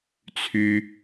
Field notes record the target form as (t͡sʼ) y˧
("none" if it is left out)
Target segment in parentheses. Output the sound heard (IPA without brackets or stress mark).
t͡sʰ